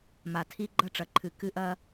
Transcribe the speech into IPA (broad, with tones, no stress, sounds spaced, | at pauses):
m a˨ tʰ i˦ ɡ͡ǃ ɐ˦ ʈ͡ʂ ɐ˨ ǃʰ ɨ˨ k ɨ˦ ʔ ɐ˦